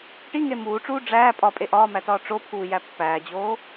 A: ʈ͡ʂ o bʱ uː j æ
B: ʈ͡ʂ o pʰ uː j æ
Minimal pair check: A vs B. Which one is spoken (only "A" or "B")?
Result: B